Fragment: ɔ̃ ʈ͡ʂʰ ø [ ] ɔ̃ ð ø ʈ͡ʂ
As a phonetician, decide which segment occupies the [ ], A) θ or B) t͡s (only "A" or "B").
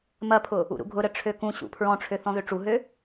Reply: A